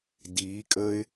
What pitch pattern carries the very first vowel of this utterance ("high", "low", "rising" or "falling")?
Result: rising